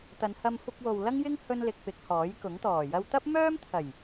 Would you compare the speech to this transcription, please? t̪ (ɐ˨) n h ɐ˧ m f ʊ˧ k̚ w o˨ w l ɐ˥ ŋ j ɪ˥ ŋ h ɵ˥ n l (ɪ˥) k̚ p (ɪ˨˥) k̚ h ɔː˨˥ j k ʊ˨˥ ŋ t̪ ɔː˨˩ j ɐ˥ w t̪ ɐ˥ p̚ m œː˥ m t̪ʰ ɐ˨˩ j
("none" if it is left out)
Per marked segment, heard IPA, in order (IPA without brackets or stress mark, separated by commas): ɐ˨˧, ɪ˧, ɪ˨˥